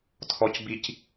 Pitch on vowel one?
low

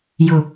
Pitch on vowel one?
low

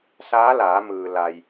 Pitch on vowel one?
rising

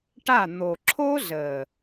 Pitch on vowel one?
falling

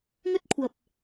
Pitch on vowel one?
high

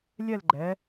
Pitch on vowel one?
falling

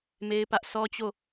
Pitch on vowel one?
high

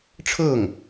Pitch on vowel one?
falling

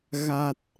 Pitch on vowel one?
low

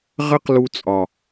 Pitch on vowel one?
high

